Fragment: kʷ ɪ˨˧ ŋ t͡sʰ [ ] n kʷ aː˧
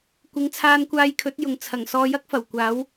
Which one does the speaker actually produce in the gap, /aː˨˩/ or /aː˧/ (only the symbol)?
aː˧